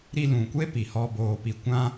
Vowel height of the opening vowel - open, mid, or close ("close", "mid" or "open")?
close